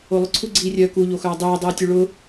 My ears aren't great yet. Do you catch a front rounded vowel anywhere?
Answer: yes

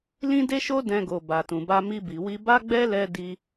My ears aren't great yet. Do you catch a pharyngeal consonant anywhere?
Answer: no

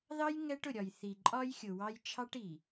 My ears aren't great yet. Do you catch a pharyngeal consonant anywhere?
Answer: no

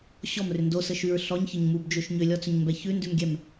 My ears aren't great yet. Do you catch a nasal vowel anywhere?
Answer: no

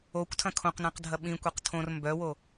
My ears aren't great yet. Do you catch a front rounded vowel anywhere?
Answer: yes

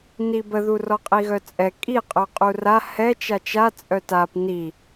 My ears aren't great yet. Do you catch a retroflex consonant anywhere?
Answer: no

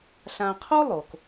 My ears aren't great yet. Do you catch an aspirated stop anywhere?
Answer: yes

